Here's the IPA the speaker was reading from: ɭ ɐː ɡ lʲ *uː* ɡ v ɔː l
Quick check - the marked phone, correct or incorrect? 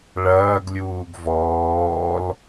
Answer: correct